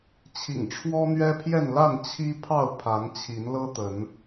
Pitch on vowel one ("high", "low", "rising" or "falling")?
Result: low